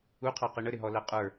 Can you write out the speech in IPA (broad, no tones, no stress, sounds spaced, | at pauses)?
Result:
u qʰ ɑ q i ɳ ə ɾ ɪ ɦ ɔ l æ qʼ ə˞